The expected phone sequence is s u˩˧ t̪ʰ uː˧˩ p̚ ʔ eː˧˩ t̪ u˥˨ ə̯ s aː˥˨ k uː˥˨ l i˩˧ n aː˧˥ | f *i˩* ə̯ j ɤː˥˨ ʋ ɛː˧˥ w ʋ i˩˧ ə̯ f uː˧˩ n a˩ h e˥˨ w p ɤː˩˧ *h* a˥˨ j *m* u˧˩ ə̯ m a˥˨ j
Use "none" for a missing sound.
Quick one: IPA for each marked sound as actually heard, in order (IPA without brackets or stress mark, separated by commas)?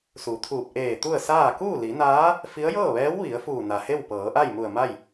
i˧˥, ʔ, m